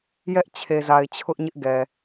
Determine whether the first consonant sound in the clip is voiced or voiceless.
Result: voiced